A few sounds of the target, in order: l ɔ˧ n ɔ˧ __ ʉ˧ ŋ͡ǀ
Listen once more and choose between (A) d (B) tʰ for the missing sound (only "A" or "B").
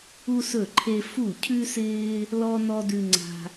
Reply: A